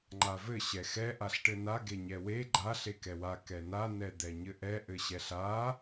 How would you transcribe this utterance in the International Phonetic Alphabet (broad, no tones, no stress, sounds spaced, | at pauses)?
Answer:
ŋ͡ǃ a v ɘ ɕ ɛ x ɛ ʔ a ɬ ʈ ɘ n a ɡ e ɲ ɛ w e ɡ͡ǃ a ɬ e k ɛ w a k ɛ n a n ɛ d̪ ɛ ɲ ɘ ʔ ɛ ʔ ɘ ɕ ɛ ɬ a